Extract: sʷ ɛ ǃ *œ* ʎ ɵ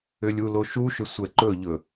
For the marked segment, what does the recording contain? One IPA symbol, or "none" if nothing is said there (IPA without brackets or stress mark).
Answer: ɵ